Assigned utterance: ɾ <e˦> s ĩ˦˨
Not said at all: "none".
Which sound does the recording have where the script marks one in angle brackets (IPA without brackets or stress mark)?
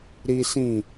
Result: i˦